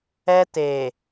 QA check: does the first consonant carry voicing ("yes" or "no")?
no